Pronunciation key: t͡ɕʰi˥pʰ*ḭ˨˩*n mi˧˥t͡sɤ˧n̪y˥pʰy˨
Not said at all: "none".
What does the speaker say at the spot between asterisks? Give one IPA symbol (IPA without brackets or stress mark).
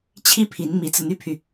i˧˥